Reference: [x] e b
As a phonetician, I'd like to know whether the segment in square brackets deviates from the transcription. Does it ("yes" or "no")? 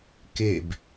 yes